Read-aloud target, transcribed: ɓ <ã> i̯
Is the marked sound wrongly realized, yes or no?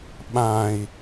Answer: no